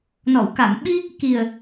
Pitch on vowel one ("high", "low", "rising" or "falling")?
low